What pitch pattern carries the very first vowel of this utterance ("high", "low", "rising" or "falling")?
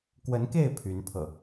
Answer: rising